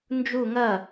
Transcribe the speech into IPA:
n d͡ʒ u ŋ ɐ

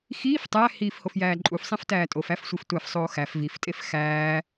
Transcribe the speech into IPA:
x iː f tˤ æ h iː f h o f j æː ǃʼ u f sˤ ẽ f t æː tʼ o f æ f sʷ i f tʷ æ f sˤ oː x æ f v i f tʼ e f x æː

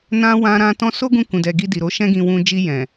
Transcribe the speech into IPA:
n ã˧ w ã˧ ɾ ã˧ t ɔ̃˧ s o˦ ɡ ũ˧ k ũ˨ d ɛ˨ ɡ i˧ d i˨ ɾ o˧ ʃ ɛ̃˦ ɡ ĩ˧ w ũ˧ d͡ʒ i˧ j ɛ̃˨

